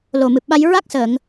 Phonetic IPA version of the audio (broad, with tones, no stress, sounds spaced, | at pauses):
l o˨˩ m ɨ˨˩ p̚ ɓ a˧ j ɹ a˦˥ k̚ s əː˨˩˨ ŋ